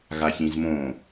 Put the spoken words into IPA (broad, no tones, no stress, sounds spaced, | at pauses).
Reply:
ɣ a ç ĩ z m õ